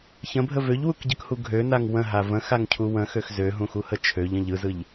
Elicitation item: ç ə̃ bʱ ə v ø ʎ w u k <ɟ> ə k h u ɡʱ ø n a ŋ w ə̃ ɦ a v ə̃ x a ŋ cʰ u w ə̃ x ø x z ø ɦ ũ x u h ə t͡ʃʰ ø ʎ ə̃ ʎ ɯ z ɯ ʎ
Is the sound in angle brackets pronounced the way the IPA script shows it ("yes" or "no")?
yes